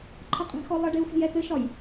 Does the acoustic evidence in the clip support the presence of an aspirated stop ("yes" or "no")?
yes